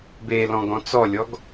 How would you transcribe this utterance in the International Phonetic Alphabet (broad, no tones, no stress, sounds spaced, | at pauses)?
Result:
b e l ɔ̃ ɡ ɔ̃ t͡s ɔ lʲ ɔ ɡ